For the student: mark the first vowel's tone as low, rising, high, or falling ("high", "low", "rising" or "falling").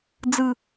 falling